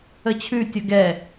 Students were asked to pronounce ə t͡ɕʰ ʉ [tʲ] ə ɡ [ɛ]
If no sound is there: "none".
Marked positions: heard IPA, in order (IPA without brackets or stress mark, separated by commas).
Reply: tʲ, ɛ